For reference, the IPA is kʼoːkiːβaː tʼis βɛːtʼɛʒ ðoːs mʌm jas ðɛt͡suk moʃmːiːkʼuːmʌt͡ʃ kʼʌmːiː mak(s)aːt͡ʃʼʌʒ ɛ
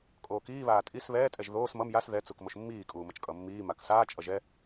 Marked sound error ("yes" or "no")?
no